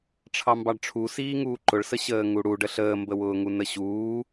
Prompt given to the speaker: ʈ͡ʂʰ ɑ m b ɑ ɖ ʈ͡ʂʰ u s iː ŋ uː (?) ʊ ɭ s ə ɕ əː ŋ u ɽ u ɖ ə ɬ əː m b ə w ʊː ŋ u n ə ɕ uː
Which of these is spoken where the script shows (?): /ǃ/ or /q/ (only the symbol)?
ǃ